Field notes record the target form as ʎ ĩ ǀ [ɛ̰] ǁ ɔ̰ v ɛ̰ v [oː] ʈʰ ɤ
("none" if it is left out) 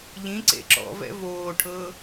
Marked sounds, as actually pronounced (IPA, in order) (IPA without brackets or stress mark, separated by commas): ḛ, oː